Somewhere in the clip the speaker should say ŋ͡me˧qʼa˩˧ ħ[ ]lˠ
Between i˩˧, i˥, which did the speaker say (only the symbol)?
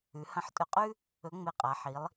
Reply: i˩˧